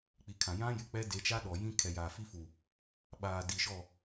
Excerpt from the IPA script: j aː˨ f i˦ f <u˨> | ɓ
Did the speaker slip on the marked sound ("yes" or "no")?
no